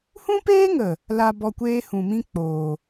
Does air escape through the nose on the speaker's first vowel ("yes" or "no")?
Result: yes